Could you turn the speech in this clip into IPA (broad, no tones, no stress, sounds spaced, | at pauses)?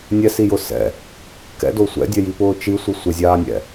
nʲ ɛ s i j ʊ s ɛ̰ | k ɛ̰ d o sʷ ɛ̰ dʲ ɛ j i p ʊː t͡ʃ i sʷ i sʷ ɪ zʲ aː nʲ ɛ̰